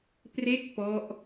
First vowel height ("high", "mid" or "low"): mid